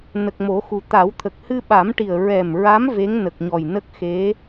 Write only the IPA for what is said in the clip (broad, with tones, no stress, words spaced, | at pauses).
nə˨˩k̚mo˨˩˦xu˨˩ t̪a˨˩˦wt̪ʰə˨˩k̚ hɨ˧ɓa˨˩˦mʈi˨˩ə̯ ɹɛ˨˩mɹa˧˥m ve˧˥ŋ nə˨˩k̚ɲɔ˨˩jnə˦˥k̚ xe˧˥